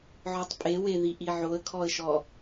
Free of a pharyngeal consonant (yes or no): no